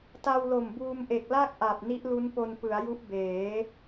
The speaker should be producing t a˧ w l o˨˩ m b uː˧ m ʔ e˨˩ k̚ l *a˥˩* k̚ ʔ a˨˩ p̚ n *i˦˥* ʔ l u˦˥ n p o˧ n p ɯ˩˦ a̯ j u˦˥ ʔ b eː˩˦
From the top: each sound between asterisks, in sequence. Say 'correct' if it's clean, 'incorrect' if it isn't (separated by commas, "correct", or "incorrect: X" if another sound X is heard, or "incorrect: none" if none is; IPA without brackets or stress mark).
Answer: correct, correct